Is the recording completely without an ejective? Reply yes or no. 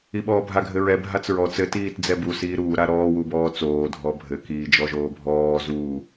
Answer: yes